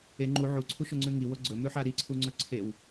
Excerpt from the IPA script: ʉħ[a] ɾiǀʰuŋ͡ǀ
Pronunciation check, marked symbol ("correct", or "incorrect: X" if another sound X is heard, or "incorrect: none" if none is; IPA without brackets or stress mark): correct